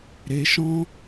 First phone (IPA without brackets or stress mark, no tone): ɾ